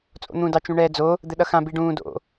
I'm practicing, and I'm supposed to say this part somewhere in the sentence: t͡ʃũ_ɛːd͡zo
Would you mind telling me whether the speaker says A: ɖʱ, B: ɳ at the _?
B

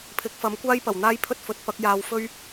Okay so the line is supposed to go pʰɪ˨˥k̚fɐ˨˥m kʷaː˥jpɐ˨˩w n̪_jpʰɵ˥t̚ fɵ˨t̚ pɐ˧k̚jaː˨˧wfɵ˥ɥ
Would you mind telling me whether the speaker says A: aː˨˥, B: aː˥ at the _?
B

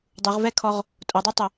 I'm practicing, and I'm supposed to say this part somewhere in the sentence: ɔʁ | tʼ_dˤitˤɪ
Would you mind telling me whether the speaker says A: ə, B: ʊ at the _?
B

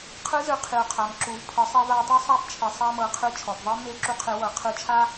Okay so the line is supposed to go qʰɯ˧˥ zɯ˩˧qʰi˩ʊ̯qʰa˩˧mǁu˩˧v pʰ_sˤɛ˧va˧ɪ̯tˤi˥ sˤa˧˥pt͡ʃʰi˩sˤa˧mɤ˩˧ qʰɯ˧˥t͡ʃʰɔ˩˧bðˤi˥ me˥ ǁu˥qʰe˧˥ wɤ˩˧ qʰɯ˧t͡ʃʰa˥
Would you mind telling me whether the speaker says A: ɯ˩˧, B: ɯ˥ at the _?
A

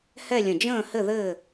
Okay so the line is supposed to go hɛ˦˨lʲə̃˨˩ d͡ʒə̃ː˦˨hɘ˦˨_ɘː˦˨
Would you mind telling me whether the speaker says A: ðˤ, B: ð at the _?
B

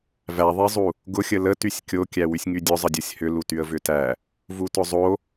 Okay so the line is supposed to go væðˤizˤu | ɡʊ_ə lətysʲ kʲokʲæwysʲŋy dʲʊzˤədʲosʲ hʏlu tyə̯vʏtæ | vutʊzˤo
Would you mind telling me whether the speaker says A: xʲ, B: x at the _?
A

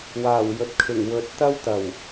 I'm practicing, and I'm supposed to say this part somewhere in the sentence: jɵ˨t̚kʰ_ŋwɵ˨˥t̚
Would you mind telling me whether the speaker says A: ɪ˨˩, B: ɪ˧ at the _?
A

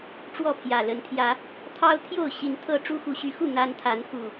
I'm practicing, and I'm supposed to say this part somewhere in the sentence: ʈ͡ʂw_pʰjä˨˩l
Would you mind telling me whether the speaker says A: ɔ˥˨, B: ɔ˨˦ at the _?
A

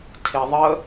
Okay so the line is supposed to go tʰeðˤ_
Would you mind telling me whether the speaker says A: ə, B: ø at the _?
A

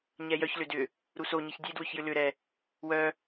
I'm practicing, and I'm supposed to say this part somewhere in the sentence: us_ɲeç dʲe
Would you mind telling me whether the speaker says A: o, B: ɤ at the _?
A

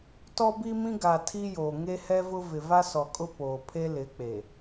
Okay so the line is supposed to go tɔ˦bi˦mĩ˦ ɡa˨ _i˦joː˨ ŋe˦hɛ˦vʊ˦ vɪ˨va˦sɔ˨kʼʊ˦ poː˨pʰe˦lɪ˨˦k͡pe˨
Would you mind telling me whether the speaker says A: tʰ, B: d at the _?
A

